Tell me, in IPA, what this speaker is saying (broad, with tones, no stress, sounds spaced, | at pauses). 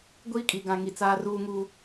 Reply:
ɡʷ iː˦ kʼ i˨ ɡ ã˨ ŋ i˨ t͡s aː˦ r uː˦ ŋ uː˦